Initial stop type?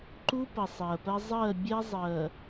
click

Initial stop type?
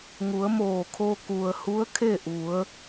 aspirated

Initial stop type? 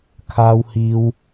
aspirated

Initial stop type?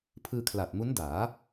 aspirated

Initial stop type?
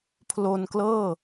aspirated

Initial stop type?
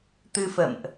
plain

